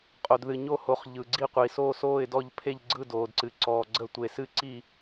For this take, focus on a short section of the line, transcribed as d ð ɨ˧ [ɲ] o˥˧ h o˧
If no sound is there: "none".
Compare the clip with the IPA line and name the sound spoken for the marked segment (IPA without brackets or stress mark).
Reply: ɲ